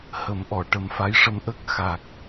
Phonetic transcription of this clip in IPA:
h ə˨˩˦ m ʔ ɔ˨˩˨ ʈ ə˨˩˦ m f a˧˥ j ʂ ə˧ m ʔ ə˦˥ k̚ x a˨˩ k̚

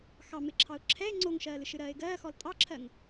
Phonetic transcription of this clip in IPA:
x ɑ m ɪ ǁʰ ɑ ʊ̯ ǁʰ ɛ ɪ̯ ŋ͡ǀ o ŋ ʃ ɜː l ɨ ʃ ɨ ɾ ɜː ɪ̯ ɡ ɜː x ɔ l tʼ ɑ ǁʰ ɜ ŋ

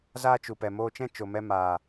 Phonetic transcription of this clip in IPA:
z aː˦ t͡ʃ u˨ p ɛ˨ m oː˧ t͡ʃ ɛ̃˦ t͡ʃ o˨ m ɛ˧ m aː˨

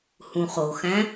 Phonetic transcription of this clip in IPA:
h ũ χ o x æ̃

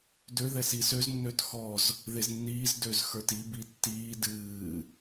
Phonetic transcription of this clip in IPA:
d ø ð ɛ s i s ø z nː ø t x ɔ z | ð e z nː iː z d ø z x ə˞ t i b i tː iː d ɨː

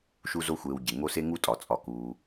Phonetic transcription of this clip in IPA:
ʃ u˦ z o˦ xʷ eː˨ w ɟ e˩ ŋ o˦ s e˥ ŋ u˥ tʼ ɒ˩ t͡sʼ ɒ˨ k uː˨

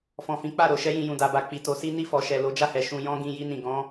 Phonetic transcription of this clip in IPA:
f ɔ̃˨ f ĩ˨˦ k͡p a˦˨ ɾ o˨ ʃ ɛ˧ j ĩ˨ j ũ˨ d a˨ b a˨ k͡p i˨ t o˨˦ s i˦ n i˦˨ f ɔ˨ ʃ ɛ˨ l o˨˦ d͡ʒ a˦˨ h ɛ˨ ʃ ũ˨ j ɔ̃˧ ɡ ĩ˨ j i˧ n ĩ˨ ɡ ɔ̃˨˦

